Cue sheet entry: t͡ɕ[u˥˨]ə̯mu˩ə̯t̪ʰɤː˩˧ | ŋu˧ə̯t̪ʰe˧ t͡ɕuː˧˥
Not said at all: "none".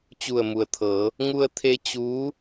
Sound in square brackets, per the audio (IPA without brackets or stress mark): u˧˩